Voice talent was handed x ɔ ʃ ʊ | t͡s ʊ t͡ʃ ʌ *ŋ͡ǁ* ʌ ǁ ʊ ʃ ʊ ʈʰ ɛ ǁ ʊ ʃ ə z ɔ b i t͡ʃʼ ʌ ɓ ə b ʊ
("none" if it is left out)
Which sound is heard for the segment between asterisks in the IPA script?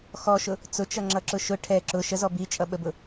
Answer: ŋ͡ǁ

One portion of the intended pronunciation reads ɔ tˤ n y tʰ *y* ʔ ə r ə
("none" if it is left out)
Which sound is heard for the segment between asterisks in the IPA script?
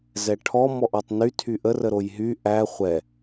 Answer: y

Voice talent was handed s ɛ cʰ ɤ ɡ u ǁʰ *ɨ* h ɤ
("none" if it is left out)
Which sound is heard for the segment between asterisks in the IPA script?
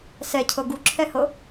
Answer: ɛ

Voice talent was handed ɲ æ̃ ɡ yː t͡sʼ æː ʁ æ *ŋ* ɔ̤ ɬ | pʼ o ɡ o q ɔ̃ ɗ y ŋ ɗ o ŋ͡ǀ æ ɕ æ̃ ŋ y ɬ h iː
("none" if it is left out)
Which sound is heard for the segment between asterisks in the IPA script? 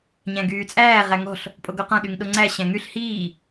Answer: ŋ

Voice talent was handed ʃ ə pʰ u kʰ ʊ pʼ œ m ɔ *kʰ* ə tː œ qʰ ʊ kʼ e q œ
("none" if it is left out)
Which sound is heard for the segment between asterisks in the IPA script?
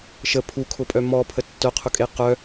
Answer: pʰ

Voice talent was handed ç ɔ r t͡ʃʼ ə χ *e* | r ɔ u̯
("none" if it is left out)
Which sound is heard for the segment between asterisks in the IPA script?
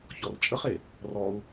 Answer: e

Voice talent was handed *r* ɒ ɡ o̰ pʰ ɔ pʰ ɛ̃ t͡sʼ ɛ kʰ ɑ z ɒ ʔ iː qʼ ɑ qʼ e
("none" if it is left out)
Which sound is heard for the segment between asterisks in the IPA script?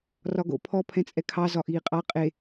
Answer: r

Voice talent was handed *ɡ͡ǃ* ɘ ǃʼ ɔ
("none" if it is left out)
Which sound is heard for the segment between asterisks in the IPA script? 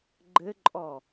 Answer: ɡ͡ǃ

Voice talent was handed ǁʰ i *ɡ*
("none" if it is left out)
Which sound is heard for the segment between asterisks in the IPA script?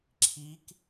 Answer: k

